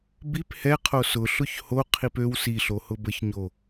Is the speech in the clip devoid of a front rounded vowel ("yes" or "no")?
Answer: no